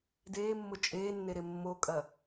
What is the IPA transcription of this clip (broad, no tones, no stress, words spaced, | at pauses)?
deːmːʊ t͡ʃʼeːnːeɾe mːokʼɐ